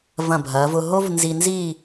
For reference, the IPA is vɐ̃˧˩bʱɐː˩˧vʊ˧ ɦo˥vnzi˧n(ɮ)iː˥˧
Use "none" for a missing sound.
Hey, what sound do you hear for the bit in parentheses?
z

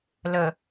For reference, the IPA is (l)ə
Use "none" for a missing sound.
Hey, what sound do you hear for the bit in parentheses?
l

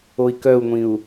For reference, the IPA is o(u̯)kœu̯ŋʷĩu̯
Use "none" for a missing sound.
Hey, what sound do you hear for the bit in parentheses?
i̯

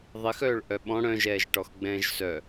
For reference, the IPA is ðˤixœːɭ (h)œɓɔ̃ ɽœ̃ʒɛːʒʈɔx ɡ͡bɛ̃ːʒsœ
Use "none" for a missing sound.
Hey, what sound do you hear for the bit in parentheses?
ʔ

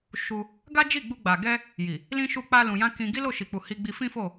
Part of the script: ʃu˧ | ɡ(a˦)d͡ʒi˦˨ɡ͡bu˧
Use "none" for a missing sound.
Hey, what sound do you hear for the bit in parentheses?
a˦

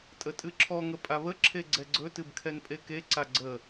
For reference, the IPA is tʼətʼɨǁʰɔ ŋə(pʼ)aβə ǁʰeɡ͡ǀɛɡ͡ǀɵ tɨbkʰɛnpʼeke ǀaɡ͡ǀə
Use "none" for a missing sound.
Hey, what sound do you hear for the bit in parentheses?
pʼ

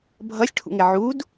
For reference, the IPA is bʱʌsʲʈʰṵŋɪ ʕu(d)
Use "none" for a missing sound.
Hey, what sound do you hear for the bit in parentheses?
d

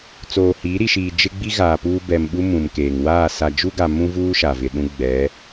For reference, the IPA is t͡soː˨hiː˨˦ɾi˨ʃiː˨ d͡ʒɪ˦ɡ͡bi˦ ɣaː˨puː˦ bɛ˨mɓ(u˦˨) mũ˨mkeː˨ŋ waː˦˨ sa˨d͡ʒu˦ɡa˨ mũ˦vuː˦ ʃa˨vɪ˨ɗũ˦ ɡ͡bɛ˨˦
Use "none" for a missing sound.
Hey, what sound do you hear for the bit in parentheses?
u˦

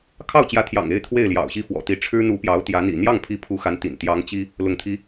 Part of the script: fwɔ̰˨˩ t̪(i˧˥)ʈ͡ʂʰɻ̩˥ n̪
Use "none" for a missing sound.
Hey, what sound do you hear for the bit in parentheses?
i˧˥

